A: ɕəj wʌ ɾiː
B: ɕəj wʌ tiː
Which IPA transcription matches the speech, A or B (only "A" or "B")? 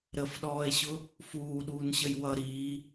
A